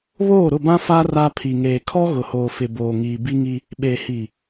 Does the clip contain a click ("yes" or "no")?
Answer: no